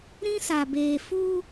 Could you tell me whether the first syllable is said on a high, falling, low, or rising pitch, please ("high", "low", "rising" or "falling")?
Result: high